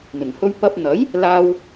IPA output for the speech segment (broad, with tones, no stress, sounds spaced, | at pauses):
n̪ ɪ˨˩ ŋ h ɵ˧ ɥ p ɐ˧ p̚ n̪ ɐ˨˥ j | l aː˥ w